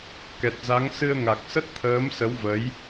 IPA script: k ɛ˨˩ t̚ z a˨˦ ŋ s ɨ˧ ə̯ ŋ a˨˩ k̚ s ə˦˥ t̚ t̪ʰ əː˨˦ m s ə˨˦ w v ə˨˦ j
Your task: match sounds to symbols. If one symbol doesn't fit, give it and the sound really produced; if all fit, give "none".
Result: none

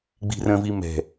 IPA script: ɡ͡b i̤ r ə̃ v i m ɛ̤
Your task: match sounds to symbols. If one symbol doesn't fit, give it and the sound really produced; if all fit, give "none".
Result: none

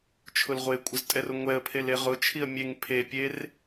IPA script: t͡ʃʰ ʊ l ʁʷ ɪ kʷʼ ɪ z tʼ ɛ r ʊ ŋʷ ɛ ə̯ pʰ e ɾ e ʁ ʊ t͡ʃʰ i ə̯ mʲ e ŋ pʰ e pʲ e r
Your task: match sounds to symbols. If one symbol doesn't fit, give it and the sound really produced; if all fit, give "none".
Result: ɾ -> l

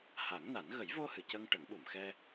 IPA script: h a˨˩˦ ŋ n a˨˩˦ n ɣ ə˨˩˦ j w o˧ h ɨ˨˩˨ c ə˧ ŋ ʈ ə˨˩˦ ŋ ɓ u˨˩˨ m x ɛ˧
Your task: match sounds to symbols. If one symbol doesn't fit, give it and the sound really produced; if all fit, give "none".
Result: w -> v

